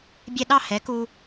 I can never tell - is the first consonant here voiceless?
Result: no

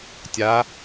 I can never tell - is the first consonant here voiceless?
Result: yes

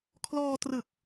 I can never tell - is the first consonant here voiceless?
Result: yes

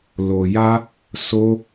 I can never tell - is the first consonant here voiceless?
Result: no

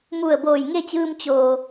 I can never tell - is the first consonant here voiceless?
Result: no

